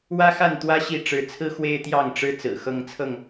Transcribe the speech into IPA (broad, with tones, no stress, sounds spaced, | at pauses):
w ä˦ x a˥˨ n t̪ w ä˦ ɕ i˥˨ ʈ͡ʂ ɻ̩˨˦ t͡sʰ ɹ̩˦ x w e˦ ɪ̯ t̪ j ɑ˥˨ ŋ ʈ͡ʂ ɻ̩˦ t͡s ɹ̩˨˩ x ɤ˦ ŋ t͡sʰ ɤ˥˨ ŋ